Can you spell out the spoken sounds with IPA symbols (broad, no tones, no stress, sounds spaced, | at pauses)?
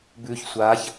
b ʉ ç sʷ a ç